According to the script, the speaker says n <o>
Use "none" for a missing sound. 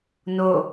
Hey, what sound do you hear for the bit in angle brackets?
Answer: o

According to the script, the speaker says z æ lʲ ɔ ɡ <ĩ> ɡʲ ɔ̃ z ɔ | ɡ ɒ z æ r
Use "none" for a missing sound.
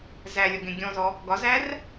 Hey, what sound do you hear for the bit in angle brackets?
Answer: ẽ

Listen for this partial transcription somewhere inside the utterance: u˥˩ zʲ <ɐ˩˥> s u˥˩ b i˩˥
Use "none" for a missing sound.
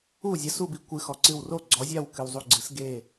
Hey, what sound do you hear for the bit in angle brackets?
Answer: ɐ˩˥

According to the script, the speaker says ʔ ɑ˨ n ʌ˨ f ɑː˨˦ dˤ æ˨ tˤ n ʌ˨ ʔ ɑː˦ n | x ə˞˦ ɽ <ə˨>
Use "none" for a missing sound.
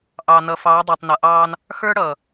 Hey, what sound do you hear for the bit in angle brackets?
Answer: ʌ˨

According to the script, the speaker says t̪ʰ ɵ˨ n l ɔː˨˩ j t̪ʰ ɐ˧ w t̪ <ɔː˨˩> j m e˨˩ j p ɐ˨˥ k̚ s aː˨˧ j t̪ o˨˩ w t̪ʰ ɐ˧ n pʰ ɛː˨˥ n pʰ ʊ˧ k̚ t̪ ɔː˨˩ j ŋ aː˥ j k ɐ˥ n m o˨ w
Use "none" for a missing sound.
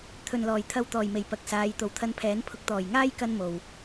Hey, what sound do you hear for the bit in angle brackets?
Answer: ɔː˨˩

